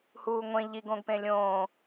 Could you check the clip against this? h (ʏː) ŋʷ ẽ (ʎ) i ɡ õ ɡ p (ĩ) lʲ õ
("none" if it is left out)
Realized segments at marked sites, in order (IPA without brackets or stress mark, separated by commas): uː, ʎ, ẽ